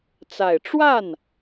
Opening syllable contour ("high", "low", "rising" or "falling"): low